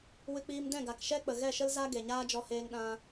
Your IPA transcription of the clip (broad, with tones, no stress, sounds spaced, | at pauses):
w ɨ˧ k͡p iː˧ m d ɛ̃˦˨ ɡ a˨ k ʃ ɛ˦ k͡p ə˨ ɣ ɛ˦˨ ʃ ə˦ l z a˦ ɡ e˨ ɲ aː˦ d͡ʒ ɔ˧ h eː˧ ŋ ɗ ã˧